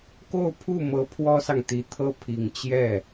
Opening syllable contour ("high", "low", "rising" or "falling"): falling